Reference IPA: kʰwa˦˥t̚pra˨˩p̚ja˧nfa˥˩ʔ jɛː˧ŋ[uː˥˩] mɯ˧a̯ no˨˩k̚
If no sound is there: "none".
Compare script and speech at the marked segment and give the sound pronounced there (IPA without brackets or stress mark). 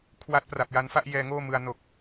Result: oː˥˩